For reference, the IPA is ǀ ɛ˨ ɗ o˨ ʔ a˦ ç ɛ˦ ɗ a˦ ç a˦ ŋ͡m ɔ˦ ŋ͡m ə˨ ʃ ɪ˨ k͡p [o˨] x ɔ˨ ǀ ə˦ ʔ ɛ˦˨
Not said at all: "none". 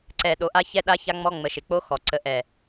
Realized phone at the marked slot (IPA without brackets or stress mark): o˦